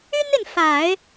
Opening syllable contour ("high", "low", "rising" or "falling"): high